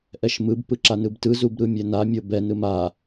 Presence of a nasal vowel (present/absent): absent